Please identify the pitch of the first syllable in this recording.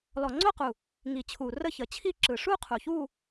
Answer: low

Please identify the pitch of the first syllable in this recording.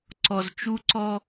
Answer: low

